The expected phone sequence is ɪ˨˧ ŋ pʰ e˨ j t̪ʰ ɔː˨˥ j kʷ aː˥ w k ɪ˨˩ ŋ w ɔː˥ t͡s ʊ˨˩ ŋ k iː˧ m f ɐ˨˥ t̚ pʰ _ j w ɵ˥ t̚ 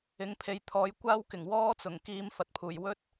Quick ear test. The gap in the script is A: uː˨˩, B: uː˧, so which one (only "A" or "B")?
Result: A